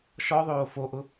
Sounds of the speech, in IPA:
ʃ ɔ ðˤ oː f o ʔ ʊ

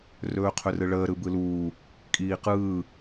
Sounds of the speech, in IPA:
r ɵː qʰ ɵ r ɯ ɭ əː ɾ ɯ b ɯ l uː | kʼ iː q ɯː

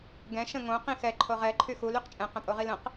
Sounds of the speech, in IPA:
ɡ ɛ̃ ʃ ə̃ ŋ õ q ĩ x ɛ ǃʰ o ʁ ɛ ǃʰ y x u l y q t͡ʃʼ ɛ̃ q ə̃ pʼ o ʁ i l ə̃ q

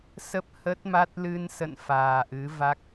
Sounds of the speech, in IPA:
s ə˦˥ p̚ h ə˦˥ t̚ m a˦˥ t̚ l ɨ˧ n s ə̰˧˨ n f aː˨˩ ʔ ɨ˨˦ v a˦˥ k̚

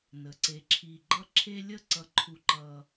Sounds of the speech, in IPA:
n ə˩ ǀ e˨ ǁʰ i˨ ɡ͡ǃ ʌ˦ ǁʰ e˦ lʲ ə˦ ǀ ʌ˨ ǃʰ u˨ ǃ ʌ˨

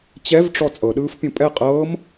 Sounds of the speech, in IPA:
t͡ɕ ɛ v ʈ͡ʂ ɔ t͡sʼ ɤ ɗ ɯː f pʲ õ pʼ ɛ qʼ ɤː m

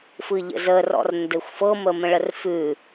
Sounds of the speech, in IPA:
f ɯ ʎ ə̰ z ə r ɔ̰ r n d ɘ xʷ f ɤ m ə m ə̃ ɭ ə r f ʉ

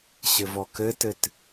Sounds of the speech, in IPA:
ɕ ɘ v ɔ k ɘ t ɘ t

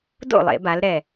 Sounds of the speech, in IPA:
d o̰˥˩ lˠ ḛ˧˩˧ b a˩˧ l ɾ ɛ˨˩

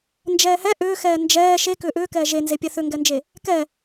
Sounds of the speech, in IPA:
n d͡ʒ ɛː h ɛ ʔ ʏː x ɛː n d͡ʒ ɛː ʃ e k ʏː ʔ ʏː k ɛː ʒ e n z e pʲ ɛ θ ʏ ŋ ɡ ɛ n d͡ʒ e | k ɛ

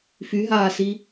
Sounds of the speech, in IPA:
f y ɦ aː s i

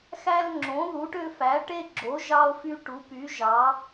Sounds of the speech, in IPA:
x æ˦ l ŋ͡ǁ õ˩˥ ð u˩˥ ʈ ø˦ f æ˩˥ ʈ e˦ ɡ͡ǁ o˩˥ ʒ ɑ˦ o̯ f y˦ ʈ u˩˥ p y˩˥ ʒ ɑ˩˥

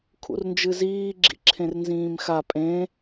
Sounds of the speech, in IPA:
kʰ ṵ r n d͡ʒ ɨ z iː ɡ͡ǁ ḭ ǁʰ ẽ r n z ĩː m x a pʼ ẽ

